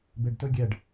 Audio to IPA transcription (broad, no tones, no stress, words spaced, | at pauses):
beɖtɵ ɡʲɛɖ